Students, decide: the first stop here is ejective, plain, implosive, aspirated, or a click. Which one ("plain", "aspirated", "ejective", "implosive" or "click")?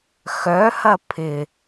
aspirated